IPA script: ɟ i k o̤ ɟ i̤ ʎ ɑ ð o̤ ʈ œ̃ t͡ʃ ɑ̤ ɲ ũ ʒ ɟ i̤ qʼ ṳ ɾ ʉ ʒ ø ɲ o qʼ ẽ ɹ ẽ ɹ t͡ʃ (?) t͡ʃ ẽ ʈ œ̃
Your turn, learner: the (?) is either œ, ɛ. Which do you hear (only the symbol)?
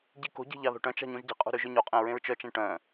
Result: œ